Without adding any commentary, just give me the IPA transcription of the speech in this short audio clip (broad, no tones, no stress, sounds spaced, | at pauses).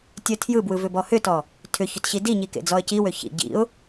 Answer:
tʲ œ tʰ j ɯ b w ɯ v ʏ b ɔ h ʏ t ɔ | tʰ ʏ ç ʏ t ɕ i d i ɲ i k ḛ d͡z ɔ ə̯ c i w ø ç ḭ ɟ ḭ ʊ̯